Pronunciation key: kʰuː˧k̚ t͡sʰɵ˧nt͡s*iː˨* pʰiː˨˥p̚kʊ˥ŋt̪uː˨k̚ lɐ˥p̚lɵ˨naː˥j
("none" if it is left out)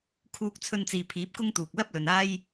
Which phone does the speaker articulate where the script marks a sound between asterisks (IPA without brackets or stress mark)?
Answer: iː˨